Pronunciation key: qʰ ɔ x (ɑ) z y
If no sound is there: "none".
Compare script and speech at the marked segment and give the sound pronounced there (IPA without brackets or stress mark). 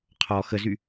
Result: ə